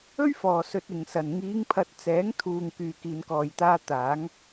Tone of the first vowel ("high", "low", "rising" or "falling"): high